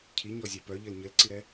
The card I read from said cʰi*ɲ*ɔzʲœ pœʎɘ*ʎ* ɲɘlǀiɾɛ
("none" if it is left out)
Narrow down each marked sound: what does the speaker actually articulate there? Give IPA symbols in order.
ɲ, l

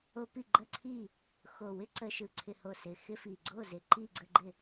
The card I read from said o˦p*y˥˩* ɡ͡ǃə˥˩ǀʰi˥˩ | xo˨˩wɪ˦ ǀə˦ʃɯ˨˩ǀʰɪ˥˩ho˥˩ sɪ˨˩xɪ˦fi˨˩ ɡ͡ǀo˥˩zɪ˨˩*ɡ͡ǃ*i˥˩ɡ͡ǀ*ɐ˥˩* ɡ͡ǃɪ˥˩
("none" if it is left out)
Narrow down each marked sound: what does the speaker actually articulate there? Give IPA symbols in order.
i˥˩, ǃ, ə˥˩

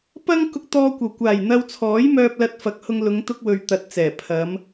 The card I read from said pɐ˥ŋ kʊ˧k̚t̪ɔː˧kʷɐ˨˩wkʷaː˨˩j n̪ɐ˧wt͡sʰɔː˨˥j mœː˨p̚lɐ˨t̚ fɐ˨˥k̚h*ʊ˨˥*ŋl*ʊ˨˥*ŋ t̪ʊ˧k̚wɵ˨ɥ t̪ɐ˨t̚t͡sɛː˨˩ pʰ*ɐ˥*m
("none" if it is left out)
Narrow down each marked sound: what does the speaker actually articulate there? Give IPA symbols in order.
ʊ˧, ʊ˨˧, ɐ˨˧

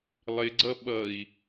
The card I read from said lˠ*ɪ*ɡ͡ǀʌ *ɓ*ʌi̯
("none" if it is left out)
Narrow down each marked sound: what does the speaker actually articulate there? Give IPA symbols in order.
ɪ, ɓ

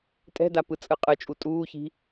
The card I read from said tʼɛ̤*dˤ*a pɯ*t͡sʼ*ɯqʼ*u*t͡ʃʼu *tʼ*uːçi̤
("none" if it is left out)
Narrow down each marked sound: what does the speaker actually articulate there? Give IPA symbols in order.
d, t͡sʼ, ɯ, tʼ

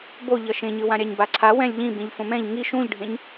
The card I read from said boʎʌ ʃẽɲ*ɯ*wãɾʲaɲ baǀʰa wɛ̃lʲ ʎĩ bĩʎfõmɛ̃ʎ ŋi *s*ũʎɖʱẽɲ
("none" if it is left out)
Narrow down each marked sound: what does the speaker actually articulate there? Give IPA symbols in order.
ɯ, ʃ

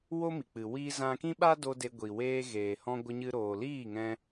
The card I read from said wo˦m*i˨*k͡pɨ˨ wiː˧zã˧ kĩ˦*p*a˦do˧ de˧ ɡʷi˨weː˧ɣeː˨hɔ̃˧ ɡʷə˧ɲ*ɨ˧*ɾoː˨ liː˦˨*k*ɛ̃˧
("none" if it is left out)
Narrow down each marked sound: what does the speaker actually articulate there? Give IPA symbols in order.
i˨, ɓ, ɨ˧, ŋ

